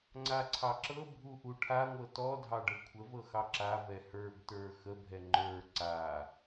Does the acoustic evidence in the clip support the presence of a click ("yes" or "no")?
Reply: yes